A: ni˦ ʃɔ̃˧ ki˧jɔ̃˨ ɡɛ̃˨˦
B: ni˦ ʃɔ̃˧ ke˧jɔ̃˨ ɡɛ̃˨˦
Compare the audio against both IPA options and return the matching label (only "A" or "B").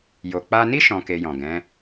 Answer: B